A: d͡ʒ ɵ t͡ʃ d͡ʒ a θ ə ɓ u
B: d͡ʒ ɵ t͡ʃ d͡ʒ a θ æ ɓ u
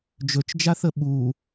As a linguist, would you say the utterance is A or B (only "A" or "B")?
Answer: A